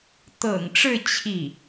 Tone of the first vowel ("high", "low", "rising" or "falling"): low